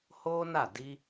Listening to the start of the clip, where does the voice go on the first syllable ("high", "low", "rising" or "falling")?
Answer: high